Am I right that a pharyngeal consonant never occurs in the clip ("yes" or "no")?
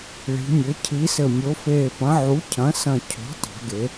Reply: no